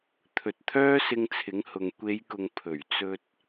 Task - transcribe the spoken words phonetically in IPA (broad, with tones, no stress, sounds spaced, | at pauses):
t̪ʰ ɵ˨ t̚ t̪ʰ œː˥ s ɪ˧ ŋ t͡sʰ ɪ˨˥ ŋ h ʊ˨ ŋ kʷ e˨˧ j k ʊ˨ ŋ pʰ ɵ˨˩ ɥ t͡s ɵ˧ t̚